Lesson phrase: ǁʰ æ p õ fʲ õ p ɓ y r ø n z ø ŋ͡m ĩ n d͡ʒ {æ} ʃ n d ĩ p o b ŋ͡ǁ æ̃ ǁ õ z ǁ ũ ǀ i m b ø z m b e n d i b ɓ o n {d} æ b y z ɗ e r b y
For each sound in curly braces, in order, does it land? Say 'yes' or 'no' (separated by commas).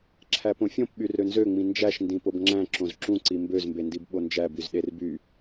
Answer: yes, no